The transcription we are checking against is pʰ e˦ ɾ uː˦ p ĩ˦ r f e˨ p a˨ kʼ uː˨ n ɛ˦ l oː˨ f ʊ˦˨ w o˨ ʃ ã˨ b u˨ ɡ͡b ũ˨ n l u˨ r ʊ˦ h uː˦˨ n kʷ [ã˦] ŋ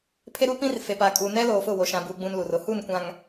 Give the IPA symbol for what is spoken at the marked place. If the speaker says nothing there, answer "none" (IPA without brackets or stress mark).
ã˨